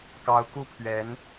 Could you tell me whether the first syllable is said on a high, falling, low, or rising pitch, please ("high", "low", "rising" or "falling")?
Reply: rising